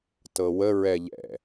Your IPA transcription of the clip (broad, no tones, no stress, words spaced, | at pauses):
tɤwə ɹɛʎɛ̰